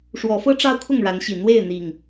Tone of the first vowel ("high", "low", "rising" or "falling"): rising